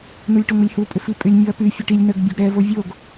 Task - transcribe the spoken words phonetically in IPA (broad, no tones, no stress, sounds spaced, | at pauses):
n u lʲ ʈ ə ŋʷ ɐ lʲ h u pʼ ʏ f i pʼ ʏ lʲ nʲ o ɐ̯ p y fʲ ɐ ʈ i lʲ n ə ɡ bʲ o ɡ ɽ ɛ v o vʲ o ɡ